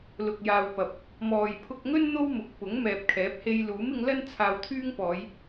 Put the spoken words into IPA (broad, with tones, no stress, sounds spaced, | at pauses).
l ʊ˨ k̚ j aː˨ w p ɐ˨ p̚ | m ɔː˨ j pʰ ʊ˧ k̚ ŋ ɵ˥ n n̪ o˥ w m ʊ˨˥ k̚ p ʊ˨˥ ŋ m ɛː˨ p̚ kʰ ɛː˨˥ p̚ h e˧ j l uː˨˥ m ɪ˨˧ ŋ l ɐ˥ n t͡sʰ aː˧ w t̪ʰ yː˥ ŋ p ɔː˨˧ j